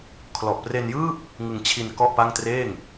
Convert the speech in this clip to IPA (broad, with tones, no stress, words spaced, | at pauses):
kʰlɔ˨˩ʔpre˧njɯː˥˩p̚ | ŋɯ˧ŋ t͡ɕʰi˧n kɔ˥˩ʔpa˥˩ŋ treː˥˩ŋ